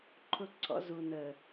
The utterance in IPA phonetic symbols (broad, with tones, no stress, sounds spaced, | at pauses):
ǃʰ ʊ˦ ǀʰ ɔ̰˦ z u˨ n ə˨